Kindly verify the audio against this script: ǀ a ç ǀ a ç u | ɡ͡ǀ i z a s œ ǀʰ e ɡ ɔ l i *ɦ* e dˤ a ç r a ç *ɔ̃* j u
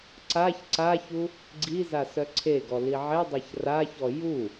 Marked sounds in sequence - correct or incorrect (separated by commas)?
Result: incorrect, incorrect